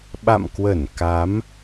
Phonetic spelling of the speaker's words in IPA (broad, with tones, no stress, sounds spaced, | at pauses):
ɓ a̰˧˨ m k w ə˧˩ n k a˨˦ m